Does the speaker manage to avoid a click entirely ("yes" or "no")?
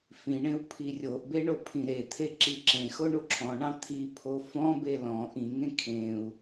no